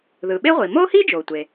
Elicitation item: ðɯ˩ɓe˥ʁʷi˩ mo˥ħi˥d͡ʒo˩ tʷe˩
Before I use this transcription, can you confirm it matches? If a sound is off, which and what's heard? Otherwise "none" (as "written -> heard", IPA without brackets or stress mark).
ħ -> h